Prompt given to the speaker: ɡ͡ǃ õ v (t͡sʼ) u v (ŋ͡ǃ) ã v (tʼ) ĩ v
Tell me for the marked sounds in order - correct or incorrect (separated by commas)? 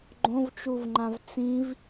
incorrect, correct, incorrect